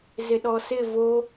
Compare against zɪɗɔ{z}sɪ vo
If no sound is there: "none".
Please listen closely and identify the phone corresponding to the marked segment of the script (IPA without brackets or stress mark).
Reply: none